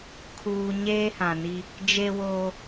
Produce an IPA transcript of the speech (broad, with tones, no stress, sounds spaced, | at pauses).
kʰ uː˨ ɲ eː˦ h ã˨ n i˦ | d͡ʒ e˦ w oː˦